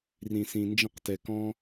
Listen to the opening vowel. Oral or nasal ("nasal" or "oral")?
nasal